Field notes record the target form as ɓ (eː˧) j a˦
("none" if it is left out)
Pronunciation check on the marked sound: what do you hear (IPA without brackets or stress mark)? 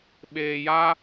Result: eː˧